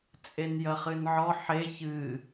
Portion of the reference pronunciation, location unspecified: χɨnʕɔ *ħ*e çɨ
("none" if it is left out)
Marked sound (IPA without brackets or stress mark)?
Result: ħ